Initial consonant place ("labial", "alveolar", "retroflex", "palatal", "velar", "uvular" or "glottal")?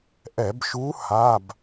glottal